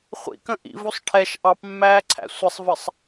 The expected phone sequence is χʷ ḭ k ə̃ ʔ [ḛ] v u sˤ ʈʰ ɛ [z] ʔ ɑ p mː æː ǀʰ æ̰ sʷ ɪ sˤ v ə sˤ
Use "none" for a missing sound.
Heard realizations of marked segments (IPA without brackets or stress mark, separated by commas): ḭ, ʃ